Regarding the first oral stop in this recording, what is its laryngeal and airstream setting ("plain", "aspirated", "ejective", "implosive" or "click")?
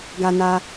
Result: plain